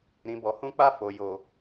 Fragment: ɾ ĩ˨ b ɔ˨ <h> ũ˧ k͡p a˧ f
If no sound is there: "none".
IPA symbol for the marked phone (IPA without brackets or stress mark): h